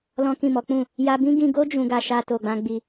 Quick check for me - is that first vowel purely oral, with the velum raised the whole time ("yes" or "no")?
no